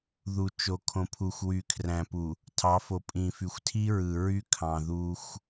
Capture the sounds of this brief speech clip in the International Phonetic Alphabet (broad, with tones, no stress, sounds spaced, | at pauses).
ð u˨ t͡ʃ o˨ kʰ õ˨ pʰ u˨ xʷ w y˨ kʰ r æ̃˨ p u˨ | tʰ ɑ˨˦ f o˨ pʼ ĩ˨ f y˨ xʷ tʰ i˦ ɹ ɯ˨ ɹ y˦ kʰ ɑ̃˨ ð u˦ xʷ